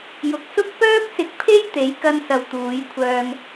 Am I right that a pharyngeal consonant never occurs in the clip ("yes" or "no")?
yes